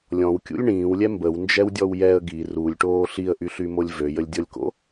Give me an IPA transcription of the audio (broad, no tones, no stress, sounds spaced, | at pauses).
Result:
lʲ ɔ̃ w kʲ ṵ lʲ ɳ ĩː w lʲ ɛ m b ə w n d͡ʒ ɛ w dʲ ɔ w j ɛ ə̯ ɡ i r u lʲ ʈ oː ɬ i ə̯ ʔ y ɬ y m o lʲ v ø j ə lʲ dʲ ɔ lʲ k o̰